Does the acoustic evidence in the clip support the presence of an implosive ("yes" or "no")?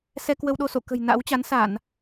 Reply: yes